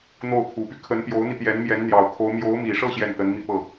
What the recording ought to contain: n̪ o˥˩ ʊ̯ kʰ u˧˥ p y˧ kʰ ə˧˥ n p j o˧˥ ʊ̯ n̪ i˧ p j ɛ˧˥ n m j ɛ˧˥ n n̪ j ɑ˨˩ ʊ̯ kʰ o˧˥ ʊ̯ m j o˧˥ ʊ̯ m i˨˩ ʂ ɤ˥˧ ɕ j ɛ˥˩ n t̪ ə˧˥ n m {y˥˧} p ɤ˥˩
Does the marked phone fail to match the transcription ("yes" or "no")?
yes